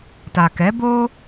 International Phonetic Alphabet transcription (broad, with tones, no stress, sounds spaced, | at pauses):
t a˨ k ɛ˨˦ b o˧